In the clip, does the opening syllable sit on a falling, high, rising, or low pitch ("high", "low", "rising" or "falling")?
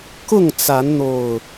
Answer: falling